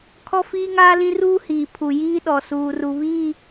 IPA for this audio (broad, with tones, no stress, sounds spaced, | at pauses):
kʰ ɔ˦ f iː˦ ŋ aː˦ l ĩ˦ r uː˦ h iː˨ pʰ u˨ j iː˦ ɗ ɔ˨ s uː˨ r u˨ β i˦˨